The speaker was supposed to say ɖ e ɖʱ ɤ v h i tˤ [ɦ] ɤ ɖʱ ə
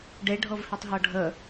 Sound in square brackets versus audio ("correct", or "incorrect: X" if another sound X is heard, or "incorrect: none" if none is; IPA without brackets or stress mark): correct